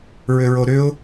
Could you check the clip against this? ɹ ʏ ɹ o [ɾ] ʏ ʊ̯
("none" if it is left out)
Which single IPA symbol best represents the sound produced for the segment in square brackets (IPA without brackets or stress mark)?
ɾ